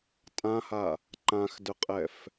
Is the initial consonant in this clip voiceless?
yes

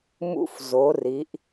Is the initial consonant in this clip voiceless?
no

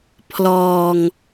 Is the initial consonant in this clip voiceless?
yes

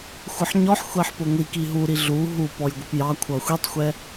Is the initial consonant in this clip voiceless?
yes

